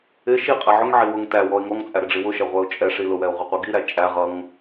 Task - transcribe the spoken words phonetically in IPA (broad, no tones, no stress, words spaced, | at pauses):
ɪ ʃiqʼɛ ʕʊŋʕi wʊŋ tæ wɔɪ̯ŋɔŋt͡sʼæ ɾɪɖ͡ʐiwʊʃɛ ʁʷɛʊ̯t͡ʃʼɛʂi lʊwɛʊ̯ ʁʷɪqʷiɡiɾæ t͡ʃʼæ ʁʌŋ